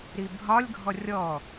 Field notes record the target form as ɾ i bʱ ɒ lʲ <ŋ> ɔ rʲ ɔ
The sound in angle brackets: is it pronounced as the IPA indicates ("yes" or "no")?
no